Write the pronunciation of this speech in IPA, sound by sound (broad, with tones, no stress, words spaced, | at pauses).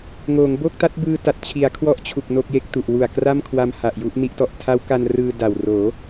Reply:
ŋoː˩˦ŋbo˥˩k̚ta˦˥t̚ bɯː˧ta˨˩t̚t͡ɕʰi˩˦a̯ kʰwɔ˥˩ʔt͡ɕʰu˨˩k̚ no˥˩k̚je˥˩k̚tu˨˩ʔ wu˨˩a̯kra˥˩mkʰwa˧m ha˨˩ʔju˥˩ʔni˥˩ʔ tɔ˨˩ʔtʰa˦˥wka˧n rɯː˧ da˨˩wroː˩˦